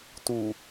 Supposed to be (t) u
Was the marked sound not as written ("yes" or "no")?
no